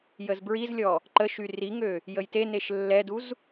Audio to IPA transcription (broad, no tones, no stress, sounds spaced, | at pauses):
j ə z b ɹ i z lʲ ɔ | ǃ ə ʃ y r i ŋ ø | j ə j t e n e ʃ lː ɛ d u z